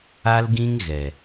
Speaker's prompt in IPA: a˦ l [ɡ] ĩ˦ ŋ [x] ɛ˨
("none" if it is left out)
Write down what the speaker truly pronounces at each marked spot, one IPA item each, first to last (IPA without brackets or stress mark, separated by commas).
ɡ, ɣ